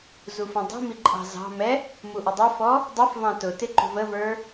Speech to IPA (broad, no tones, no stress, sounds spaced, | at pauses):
z u f ə̃ dˤ i̤ m i ǃʼ ɑ̤ z ɑ̤ m ɛ | m u ʔ ə dˤ ə f ɔ | dˤ ʌ f v ɑ̃ t ʊ t ɪ ǃ ṳ v ə v ə˞